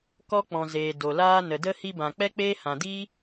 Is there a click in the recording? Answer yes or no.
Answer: no